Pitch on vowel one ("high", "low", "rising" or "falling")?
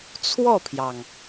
falling